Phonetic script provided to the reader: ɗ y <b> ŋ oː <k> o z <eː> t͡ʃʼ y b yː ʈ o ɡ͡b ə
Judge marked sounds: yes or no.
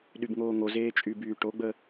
yes, no, yes

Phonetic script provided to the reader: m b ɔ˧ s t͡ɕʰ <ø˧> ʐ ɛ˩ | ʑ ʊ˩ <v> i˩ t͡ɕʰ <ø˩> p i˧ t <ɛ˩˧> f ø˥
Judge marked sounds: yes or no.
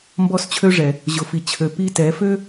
yes, no, yes, yes

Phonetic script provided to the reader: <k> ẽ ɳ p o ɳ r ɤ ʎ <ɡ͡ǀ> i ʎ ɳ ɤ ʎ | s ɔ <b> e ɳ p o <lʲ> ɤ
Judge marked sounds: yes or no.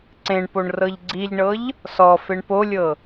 no, yes, no, yes

